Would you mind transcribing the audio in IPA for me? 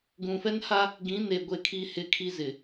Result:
ɡũ˨fɛ˦nha˦ | ɡĩ˨˦ne˨ ɡʷe˦˨kʰi˦ hɪ˦kʰi˦ zɪ˨

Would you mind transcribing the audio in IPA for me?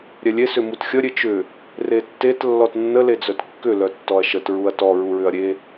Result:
ɾʲɛlʲe sʏmutxʲə ɾʲet͡ʃʏ | retːet lːɔtnːə led͡zœtkːʏ lœtːɔɐ̯ʃət ɹuɐ̯tɔ ɹuɹʏɐ̯ɾʲe

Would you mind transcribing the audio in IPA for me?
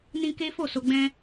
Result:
nĩ˧ ke˦fo˦˨so˧ɡ͡bɛ̃˦

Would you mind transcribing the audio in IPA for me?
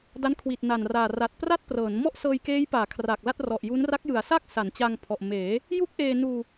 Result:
da˦˥nkʰwi˨˩t̚ na˨˩nraː˨˩ ra˨˩t̚ pra˥˩t̚prɤː˩˦n mɔ˥˩ʔsɤː˧jkeː˦˥jpaː˩˦ kʰra˨˩k̚la˥˩t̚rɔ˨˩ʔju˦˥n ra˦˥k̚jɯ˩˦a̯sa˥˩k̚ sa˩˦nt͡ɕa˧ŋpʰɔ˨˩ʔ meː˩˦ | ju˥˩k̚ʔeː˧nuː˧

